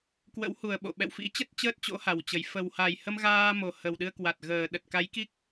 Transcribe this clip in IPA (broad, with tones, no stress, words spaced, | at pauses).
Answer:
kwə̰˧˥whu˨˩ə̯ ɓo̰˧˨ ɓɛ̰˧˨wfḭ˧˥t͡ɕə˦˥t̚ t͡ɕəː˦˥t̚t͡ɕo̰˧˥ ha˨˩wt͡ɕə˨˩j fə˨˩wha˨˩jhə˧mɣaː˧ mo˨˩hə˨˩wɗɨ˧ə̯ kwa˨˩t̚ɣəː˨˩ ɗə˨˩t̚ka˨˦jki˦˥k̚